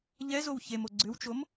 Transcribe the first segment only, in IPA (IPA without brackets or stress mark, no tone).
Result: ʎ